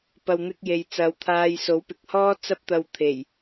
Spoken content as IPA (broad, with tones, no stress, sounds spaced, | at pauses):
p ɐ˨ w n̪ ɪ˧ k̚ j e˨ j t͡s ɐ˨˧ w t̪ʰ aː˧ j s o˨˥ w p ɪ˨ k̚ h ɔː˥ t͡s ɐ˥ p̚ t̪ ɐ˧ w t̪ʰ e˨˩ j